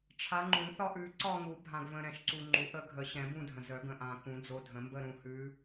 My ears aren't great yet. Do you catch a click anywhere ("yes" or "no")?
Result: yes